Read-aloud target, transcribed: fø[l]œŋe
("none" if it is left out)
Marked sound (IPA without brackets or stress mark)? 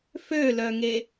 l